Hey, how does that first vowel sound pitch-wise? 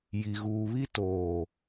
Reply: low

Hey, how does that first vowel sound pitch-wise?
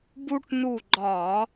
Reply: high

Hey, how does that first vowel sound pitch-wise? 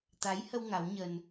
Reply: rising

